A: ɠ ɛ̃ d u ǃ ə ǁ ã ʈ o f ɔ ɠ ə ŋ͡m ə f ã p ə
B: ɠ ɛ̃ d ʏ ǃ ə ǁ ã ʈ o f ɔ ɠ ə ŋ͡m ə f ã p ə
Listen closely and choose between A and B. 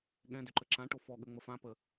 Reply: B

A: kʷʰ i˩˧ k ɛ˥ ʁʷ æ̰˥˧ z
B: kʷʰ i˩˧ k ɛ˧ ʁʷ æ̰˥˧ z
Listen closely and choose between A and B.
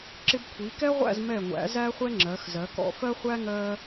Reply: A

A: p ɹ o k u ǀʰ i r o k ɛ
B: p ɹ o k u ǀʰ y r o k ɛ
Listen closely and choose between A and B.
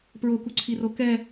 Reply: A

